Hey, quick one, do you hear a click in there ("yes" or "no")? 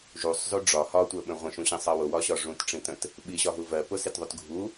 no